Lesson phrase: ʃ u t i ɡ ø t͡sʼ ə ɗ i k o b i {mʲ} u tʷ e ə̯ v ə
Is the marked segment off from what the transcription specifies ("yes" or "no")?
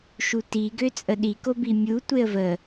no